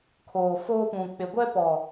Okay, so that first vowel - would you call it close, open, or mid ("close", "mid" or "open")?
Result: mid